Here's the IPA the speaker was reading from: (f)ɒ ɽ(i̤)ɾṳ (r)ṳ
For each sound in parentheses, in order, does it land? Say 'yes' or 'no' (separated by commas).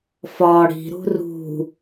yes, yes, yes